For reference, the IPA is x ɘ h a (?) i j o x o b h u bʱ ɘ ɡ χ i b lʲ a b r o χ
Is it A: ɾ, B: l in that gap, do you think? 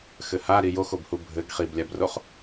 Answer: A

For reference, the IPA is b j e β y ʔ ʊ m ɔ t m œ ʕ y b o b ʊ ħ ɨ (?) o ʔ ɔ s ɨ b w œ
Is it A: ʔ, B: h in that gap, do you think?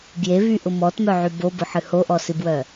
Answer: B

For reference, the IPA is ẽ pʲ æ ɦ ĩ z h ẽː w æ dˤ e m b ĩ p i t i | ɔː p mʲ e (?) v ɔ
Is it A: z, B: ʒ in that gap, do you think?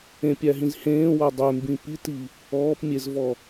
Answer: A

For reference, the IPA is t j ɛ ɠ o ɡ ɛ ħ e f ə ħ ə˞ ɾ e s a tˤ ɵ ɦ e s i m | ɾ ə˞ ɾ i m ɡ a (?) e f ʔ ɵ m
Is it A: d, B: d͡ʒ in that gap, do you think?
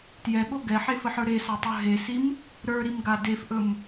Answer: A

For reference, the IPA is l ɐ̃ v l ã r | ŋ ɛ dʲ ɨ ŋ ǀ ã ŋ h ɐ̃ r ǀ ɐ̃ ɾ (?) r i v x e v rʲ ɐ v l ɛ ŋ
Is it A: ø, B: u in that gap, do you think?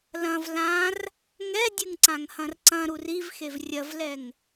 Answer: B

